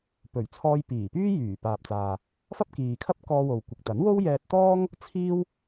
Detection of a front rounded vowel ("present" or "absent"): present